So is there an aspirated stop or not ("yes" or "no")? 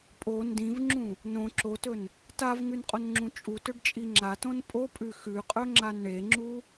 no